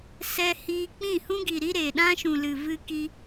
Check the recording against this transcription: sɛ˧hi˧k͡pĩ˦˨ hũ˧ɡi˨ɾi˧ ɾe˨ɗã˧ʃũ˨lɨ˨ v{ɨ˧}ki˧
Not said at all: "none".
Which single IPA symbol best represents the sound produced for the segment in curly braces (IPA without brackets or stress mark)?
ɨ˧